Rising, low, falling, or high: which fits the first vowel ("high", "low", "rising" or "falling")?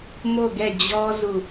falling